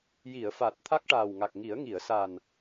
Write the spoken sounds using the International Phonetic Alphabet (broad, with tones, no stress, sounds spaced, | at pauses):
j i˨˩˨ ə̯ f a˨˩ t̚ t̪ʰ a˦˥ k̚ ʈ aː˨˩ w ŋ a˨˩ k̚ ŋ i˨˩˦ ə̯ ŋ i˨˩˨ ə̯ s a˨˩ n